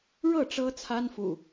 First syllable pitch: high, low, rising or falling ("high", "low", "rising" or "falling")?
falling